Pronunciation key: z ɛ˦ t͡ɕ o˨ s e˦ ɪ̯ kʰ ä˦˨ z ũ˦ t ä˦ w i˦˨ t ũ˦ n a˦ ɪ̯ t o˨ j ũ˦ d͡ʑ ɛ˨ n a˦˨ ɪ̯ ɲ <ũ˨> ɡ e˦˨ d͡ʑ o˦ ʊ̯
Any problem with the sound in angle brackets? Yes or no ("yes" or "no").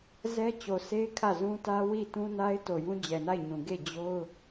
no